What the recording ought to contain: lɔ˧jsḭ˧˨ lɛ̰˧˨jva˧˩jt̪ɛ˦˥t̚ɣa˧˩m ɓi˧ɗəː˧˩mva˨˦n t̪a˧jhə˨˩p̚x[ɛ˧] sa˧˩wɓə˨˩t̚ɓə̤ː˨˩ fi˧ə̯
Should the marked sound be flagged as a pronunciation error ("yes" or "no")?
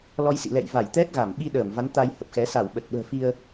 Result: yes